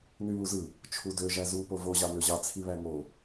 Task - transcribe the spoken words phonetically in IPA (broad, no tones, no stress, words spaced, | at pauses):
nyβuzɯ | t͡ʃʰudø ʒæzu povo ʑɑnøʑɑ t͡sʰiβæŋo